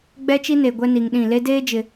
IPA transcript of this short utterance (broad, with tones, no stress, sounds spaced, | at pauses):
ɡ͡b ɛ˦ t͡ʃ i˦ n e˨ ɡʷ ɛ˦ n i˨ ŋ ɗ ĩ˦˨ l e˦ d eː˦ d͡ʒ ɪ˨